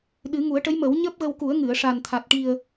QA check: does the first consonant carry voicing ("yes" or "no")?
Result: yes